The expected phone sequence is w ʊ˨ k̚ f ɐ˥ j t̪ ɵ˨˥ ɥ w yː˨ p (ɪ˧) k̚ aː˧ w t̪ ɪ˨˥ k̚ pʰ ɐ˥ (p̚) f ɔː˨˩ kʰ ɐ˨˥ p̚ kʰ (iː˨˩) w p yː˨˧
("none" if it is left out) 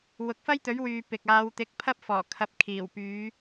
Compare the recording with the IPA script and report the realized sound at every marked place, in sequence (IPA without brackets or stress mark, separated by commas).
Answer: ɪ˨, p̚, iː˨˩